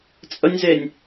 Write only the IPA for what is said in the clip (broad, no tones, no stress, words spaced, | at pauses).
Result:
t͡sʼənʲzenʲ